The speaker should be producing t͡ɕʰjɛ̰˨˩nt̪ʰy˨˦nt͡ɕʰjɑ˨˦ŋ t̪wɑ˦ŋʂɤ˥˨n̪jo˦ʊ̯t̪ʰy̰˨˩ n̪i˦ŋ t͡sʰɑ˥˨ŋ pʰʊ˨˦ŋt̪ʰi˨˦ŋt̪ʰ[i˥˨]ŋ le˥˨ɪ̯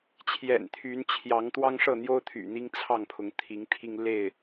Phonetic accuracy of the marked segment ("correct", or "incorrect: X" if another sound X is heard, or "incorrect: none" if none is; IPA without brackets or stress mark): incorrect: i˦